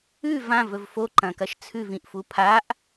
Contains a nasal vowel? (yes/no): yes